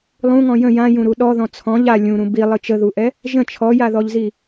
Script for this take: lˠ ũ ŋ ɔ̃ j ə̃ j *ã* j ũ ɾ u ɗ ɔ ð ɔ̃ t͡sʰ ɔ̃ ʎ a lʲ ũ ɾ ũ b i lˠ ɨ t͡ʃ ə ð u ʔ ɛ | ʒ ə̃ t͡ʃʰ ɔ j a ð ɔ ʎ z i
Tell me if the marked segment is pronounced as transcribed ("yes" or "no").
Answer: yes